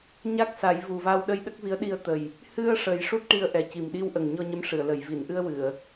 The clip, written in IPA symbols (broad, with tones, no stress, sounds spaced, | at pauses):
ɲ a˦˥ k̚ s a˨˩˦ j v u˨˩ v a˧ w ɗ ə˧ j ɗ ə˦˥ k̚ v i˧˥ ə̯ ɗ i˧ ə̯ t̪ ə˨˩ j | h ɨ˧ ə̯ ʂ ə˨˩˦ j ʂ u˦˥ t̚ ʈ i˧ ə̯ ʔ ɛ˨˩ c i˨˩ m ɗ i˧ w ʔ ə˨˩ ŋ ɲ ɔ˧ ɲ ə˧˥ m ʂ ɨ˨˩˨ ə̯ l ə˨˩˨ j v i˨˩˨ n ʔ ɨ˧ ə̯ w ɨ˨˩˨ ə̯